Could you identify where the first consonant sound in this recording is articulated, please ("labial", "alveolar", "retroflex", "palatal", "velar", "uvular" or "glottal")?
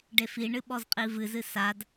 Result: retroflex